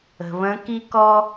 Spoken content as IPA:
ə̤˩ β ə̃˧˥ k i˥ k ɔ˥

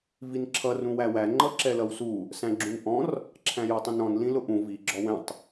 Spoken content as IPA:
v i n ǁʰ ʌ r ũ w æ w æ ŋ͡ǃ ʌ ǁ ɛ l ʌ w s u | s æ̃ ɡ͡ǁ ũ n ʔ ɔ̃ r | ǁʰ æ̃ j ɔ tˤ ĩ n ɔ̃ n l ĩ l ʊ ʔ ũ v i ɡ͡ǁ ɔ w ɛ̃ tˤ

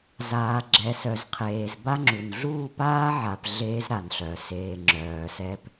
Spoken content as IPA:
z aː˨ ɡ͡ǁ ɛ˨ s œ˨ z qʰ eː˨ z b a˦ ŋ͡ǁ u˨ n ɮ uː˦˨ p aː˦ ʕ a˨ p ɮ eː˦ z ɾ a˨ n ɬ œ˨ s eː˨ ŋ͡ǁ œː˨ s ɛ˦ p

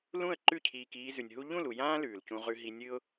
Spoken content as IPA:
l ũ˦˨ ə̯ ǃ ʉ˦˨ cʰ iː˨ k iː˧ z ʉ˨ nʲ ɦ u˦ ʎ ũ˦˨ l u˨ j ãː˦ l ʉː˨ l c ũ˧ ʁ ʉ˧ ɦ i˧ nʲ ɨ˦ ʊ̯

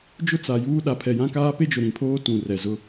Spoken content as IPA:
d͡ʒ ʊ˦ t͡s a˨ j uː˦ ɗ a˨ pʰ ɛ˨ j ã˦ k aː˦ p e˦ d͡ʒ ʊ˨ ɾ ĩ˨ pʰ oː˦ t ũ˨ r ɛ˨ z ʊ˦

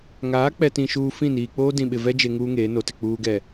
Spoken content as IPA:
ŋ aː˨˦ k͡p ɛ˨ t ĩ˦ ʃ uː˦ f ĩ˦˨ n iː˨ k͡p oː˦ d ĩ˨ ɓ ɪ˨ v ɛ˦ d͡ʒ e˨ ŋ uː˦ ŋ eː˨˦ n o˨ t ɪ˦˨ k͡p uː˨ ɡ ɛ˨

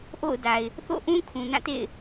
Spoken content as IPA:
ʔ o̰˦˨ ʊ̯ d a˨ ɪ̯ | θ o̰˦˨ ʔ ũ˦ kʰ ũ˨ n ã˦˨ t ḛ˦˨ ɪ̯

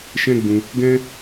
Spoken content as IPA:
ʃ ɛ̃˦ ɡ͡b ũ˧ | ɡ ɛ̃˦

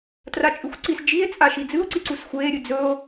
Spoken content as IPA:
t r a t͡ʃʼ ʉ xʷ ǀ i s d͡ʒ i e̯ t͡sʼ a ʃ i d͡z ɨ o̯ ǀ i ǀ u s xʷ eː ɾʲ ɨ d͡z ɵ o̯

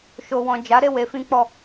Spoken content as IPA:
ʃ o˨ w ɔ̃˨ d͡ʒ a˨˦ ɾ e˦˨ w e˧ f ĩ˦ k͡p ɔ˦˨

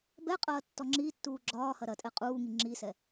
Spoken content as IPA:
b ɛ qʼ ɐː tː ɔ ŋ͡ǁ i tː uː ɡ͡ǁ ɒː h ɐ ɾ ɐ tʼ ɛ qʼ uː ŋ i ŋ͡ǁ i s ɛ

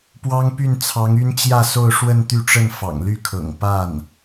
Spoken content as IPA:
p w ɑ˥ ŋ p y˥˩ n t͡sʰ ɑ˧˥ ŋ y˥ n t͡ɕ j ä˥˧ s o˥˧ ʊ̯ ʂ w ə˥˧ n t̪ y˥˧ ʈ͡ʂ ə˥˩ n f ɑ̰˨˩ ŋ l y˥˩ kʰ ɤ̰˨˩ ŋ p a˥˩ n

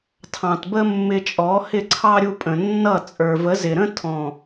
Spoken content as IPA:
tʰ ɑ̃˨ t b ə˦ mː ɪ˧ t͡ʃʼ ɔ˨˦ h ɪ˦˨ ǀʰ ɑ˦ ɾʲ u˧ pʼ ə̃˨ nː ʌ˦˨ t͡sʼ ə˞˨ v ə˨˦ z ɪ˨ ɾ ə̃˦ tʰ ɔ̃˨

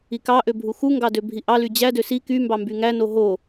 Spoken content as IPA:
i k ɑ ʔ ø bʱ u x u ŋ ɡ ɑ d ø bʱ i ʔ ɑ l y d͡ʑ æ d ø s i k y m b ɑ m b y ŋ æ n o ɦ o

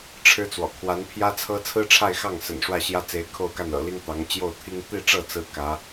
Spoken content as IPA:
ʈ͡ʂʰ ɻ̩˥ t͡s w ɔ̰˨˩ kʰ w a˧˥ n pʰ j ä˥ t͡sʰ ɤ˥ t͡sʰ ɹ̩˥ ʈ͡ʂʰ a˥˧ ɪ̯ x ɑ˥˩ ŋ s ə̰˨˩ n ʂ w ä˥˩ ɕ j ä˥ t͡s e˧˥ ɪ̯ kʰ o˥˧ ʊ̯ k a˥˩ n ɤ̰˨˩ l i˥ ŋ t̪ ɑ˧˥ ŋ t͡ɕ j o˥˩ ʊ̯ t̪ʰ i˥ ŋ t̪ i˥˧ ʈ͡ʂ ɤ˥˩ t͡s ɹ̩˥ k ä˧˥

